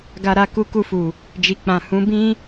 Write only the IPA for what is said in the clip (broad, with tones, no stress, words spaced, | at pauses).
ɡa˧ɾa˧ku˧ ku˧fu˨ | d͡ʒi˨k͡pã˨ hũ˨˦bĩ˦